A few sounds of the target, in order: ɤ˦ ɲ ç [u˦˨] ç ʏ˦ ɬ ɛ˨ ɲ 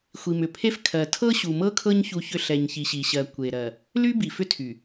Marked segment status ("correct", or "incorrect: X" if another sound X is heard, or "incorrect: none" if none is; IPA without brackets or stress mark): incorrect: u˦